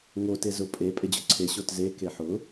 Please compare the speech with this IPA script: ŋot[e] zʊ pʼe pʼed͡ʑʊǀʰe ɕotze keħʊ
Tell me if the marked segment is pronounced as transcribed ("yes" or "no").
yes